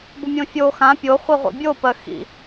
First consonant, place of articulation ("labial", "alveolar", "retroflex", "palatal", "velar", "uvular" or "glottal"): labial